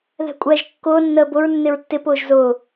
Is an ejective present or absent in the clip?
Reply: present